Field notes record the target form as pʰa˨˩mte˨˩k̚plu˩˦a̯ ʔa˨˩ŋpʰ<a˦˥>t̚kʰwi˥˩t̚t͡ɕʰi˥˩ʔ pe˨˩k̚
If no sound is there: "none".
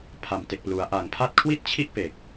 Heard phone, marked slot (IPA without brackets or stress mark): a˦˥